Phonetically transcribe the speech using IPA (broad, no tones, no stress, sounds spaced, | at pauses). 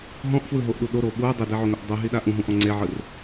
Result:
ɦ ɔ̃ ʔ f w ɯ ɦ o ʔ ɗ u ɗ o ɾ oː ɓ uː dˤ i d ɛ ʕ o ŋ o ʔ dˤ u ɦ i ɗ a ʔ ũ ɦ ũ ʔ ɔ̃ ŋ͡ǀ e ʕ ɯ r